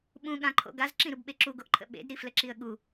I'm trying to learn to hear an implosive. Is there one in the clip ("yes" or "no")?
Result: yes